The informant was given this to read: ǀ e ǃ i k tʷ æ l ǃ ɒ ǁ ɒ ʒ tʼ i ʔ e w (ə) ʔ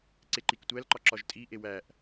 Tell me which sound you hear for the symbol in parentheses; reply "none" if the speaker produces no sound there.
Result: æ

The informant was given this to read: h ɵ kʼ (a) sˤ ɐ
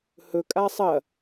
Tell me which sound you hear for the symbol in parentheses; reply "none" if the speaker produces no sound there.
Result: a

